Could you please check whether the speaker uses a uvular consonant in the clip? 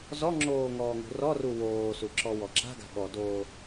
no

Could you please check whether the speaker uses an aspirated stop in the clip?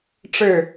no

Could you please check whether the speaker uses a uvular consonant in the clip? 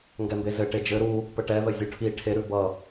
no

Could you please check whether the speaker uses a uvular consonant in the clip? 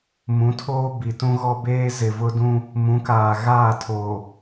no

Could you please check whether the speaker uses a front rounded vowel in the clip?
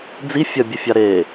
no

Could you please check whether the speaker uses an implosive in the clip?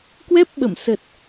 yes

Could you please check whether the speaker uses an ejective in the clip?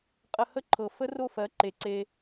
yes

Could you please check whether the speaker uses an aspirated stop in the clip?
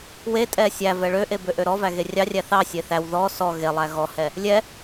no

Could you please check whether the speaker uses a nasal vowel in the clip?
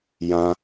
yes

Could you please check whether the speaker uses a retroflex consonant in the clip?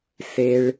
yes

